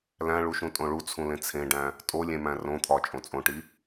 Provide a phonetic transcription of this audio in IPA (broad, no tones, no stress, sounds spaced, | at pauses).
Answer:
l æ̃ ɭ u ʃ ũ tʼ õ ɭ u t͡sʰ ũ l ẽ t͡sʰ ẽ ɖ æ̃ | tʼ o lʲ ẽ m æ̃ r õ t̪ʰ ɒ t͡ʃʼ õ t͡sʼ õ ʈ i